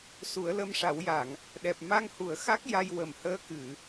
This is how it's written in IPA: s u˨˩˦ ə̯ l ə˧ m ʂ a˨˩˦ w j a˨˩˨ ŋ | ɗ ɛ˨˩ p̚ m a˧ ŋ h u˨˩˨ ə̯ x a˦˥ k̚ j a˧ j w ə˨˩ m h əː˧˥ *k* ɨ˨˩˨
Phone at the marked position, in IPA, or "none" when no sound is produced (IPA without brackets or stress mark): k